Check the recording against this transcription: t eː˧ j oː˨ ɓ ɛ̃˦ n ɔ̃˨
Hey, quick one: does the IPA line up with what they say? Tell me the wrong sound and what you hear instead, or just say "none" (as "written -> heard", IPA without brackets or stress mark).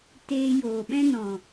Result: none